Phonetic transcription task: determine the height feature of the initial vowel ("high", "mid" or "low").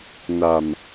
low